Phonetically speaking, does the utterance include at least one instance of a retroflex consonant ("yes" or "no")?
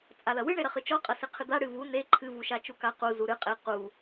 yes